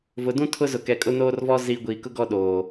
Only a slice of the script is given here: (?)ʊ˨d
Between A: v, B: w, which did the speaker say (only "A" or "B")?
A